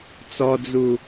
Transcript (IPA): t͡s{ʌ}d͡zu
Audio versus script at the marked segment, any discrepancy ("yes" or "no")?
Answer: yes